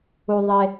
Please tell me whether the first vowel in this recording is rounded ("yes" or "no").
yes